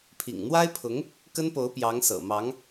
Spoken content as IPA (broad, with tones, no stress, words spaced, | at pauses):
pʰḭ˨˩ŋn̪wa˥ɪ̯pʰʊ˧˥ŋ | kə˥npo˧˥ʊ̯pjɑ˧˥ŋ sɤ̰˨˩mɑ˧˥ŋ